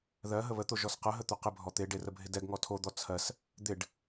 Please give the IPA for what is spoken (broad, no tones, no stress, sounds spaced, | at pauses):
ð ɜ ɦ ə β ə t̪ o ʒ ɔ s q ə ɦ ə t̪ ɵ q ɪ bʱ ɔ t̪ e ɖ e r ə bʱ ɪ d ɛ ɡ ŋ ɔ tʰ o d̪ ɔ t͡sʰ ɜ s | d̪ ɪ ɖ